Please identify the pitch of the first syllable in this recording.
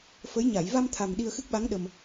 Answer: rising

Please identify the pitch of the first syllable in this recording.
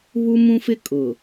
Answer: high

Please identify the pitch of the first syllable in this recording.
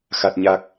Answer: low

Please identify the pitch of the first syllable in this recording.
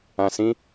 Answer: low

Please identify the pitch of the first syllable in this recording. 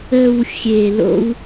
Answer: low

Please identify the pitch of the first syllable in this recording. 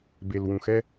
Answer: low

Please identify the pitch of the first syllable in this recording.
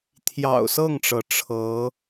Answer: low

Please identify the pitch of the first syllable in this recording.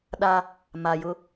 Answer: high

